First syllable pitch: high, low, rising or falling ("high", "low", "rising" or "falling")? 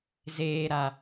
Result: low